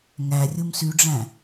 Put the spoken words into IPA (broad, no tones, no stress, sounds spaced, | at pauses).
ŋ æ rʲ u m s y ɖ͡ʐ æ̃